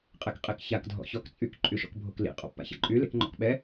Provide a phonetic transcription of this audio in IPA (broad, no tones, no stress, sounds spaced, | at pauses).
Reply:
qʼ ɛ k qʼ e k ç a k dʱ ɔ̰ ç ɔ k t͡sʼ y k ǃʼ y ʃ ɔ̰ k bʱ o k l ḭ qʼ ɔ̰ pː a̰ ç a̰ ǃʼ y l ḛ k ŋ͡ǃ ɔ̰ k ɓ ɛ